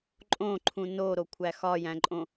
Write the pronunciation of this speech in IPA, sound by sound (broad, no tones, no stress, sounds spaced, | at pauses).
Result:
ǃʼ õ ǃʰ ũ n o ɾ o kʷʰ æ x ɒ j æ̃ ǃʼ õ